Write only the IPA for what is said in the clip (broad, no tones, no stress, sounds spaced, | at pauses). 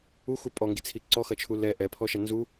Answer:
u x u pʼ ɔ ŋ ɡ i t͡sʰ i ǀ ɔ x ɐ t͡ʃʰ u l ɛ ʔ ɛ pʰ ɔ ʃ ɐ n z u